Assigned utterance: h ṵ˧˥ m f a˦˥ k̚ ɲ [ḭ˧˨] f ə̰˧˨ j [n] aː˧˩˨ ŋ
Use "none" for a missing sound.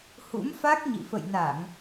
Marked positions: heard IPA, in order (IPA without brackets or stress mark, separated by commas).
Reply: ḭ˧˨, n